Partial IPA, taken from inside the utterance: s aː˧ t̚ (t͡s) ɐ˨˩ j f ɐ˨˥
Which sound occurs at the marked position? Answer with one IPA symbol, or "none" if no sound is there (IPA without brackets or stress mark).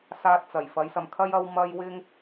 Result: t͡s